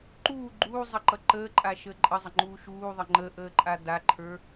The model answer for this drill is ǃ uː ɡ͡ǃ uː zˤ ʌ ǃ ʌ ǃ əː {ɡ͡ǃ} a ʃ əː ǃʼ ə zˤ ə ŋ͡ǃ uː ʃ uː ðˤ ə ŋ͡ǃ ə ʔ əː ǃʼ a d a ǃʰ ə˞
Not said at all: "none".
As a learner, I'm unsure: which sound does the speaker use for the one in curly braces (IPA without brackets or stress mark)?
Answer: ǃʼ